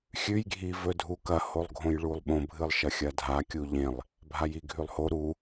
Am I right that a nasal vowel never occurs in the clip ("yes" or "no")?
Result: no